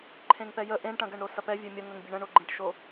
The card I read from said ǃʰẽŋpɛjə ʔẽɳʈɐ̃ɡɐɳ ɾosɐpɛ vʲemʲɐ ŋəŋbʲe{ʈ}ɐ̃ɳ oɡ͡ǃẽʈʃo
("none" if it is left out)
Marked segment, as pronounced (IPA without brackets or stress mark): ɳ